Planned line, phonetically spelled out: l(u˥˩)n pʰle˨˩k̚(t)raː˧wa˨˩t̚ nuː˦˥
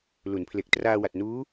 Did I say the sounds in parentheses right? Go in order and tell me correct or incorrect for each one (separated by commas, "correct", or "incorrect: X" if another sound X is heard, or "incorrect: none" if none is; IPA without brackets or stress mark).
incorrect: u˩˦, correct